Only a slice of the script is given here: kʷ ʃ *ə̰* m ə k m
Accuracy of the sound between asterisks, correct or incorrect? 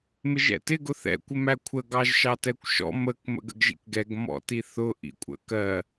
incorrect